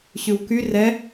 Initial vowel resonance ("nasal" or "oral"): oral